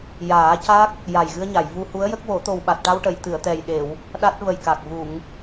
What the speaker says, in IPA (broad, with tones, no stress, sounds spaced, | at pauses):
j aː˨˩˦ c a˦˥ k̚ | j a˨˩ j ɣ ɨ˧ ə̯ ɲ a˨˩˨ j v u˧ h u˧˥ ə̯ j ə˦˥ k̚ w o˨˩˦ t̪ o˨˩ w ɓ a˨˩ t̚ ʈ a˧ w ʈ ə˨˩˨ j t̪ ɨ˨˩˨ ə̯ t̪ ɛ˨˩ j ɗ e˨˩˨ w | ɗ a˦˥ t̚ v ə˨˩ j k a˨˩ k̚ v u˨˩˨ ŋ